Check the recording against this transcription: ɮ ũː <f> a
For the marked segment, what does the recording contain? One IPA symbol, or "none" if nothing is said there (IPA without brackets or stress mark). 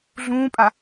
pʼ